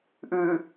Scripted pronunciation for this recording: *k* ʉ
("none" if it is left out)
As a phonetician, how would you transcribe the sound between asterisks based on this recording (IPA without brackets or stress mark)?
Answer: ʔ